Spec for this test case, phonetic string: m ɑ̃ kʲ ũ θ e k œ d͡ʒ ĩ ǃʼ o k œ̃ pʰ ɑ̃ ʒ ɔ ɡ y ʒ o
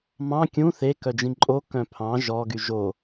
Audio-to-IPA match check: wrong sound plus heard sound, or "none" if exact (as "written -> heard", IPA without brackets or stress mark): none